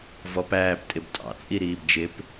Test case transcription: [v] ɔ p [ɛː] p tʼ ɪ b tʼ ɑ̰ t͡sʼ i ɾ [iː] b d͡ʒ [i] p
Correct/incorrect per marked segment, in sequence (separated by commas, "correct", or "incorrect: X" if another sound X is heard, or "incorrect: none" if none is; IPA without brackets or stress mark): correct, incorrect: æː, correct, incorrect: ɪ